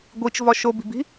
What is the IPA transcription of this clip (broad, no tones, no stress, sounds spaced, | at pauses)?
ɡʷ i t͡ʃ v ɒ ʃ o b i̤ b i̤